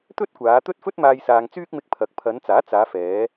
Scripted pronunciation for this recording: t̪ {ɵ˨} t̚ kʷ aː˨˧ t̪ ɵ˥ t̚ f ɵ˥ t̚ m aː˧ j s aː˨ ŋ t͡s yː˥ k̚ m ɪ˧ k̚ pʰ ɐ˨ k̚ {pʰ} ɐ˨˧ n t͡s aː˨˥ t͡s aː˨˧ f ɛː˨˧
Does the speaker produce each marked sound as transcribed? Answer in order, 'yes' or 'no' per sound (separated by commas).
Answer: no, yes